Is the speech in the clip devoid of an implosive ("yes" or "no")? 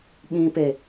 no